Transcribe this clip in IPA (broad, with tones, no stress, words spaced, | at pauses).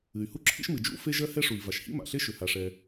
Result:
ɨ˩y̯hu˥ǁʰḭ˥ʃ mɨ˩d͡ʒṵ˥ fe˥ʒɜ˥ hɛ˥ʂu˩i̯ va˩ʃhḭ˥ma̰˩ɬe˥ ʃʏ˩ha˩ʂɛ˩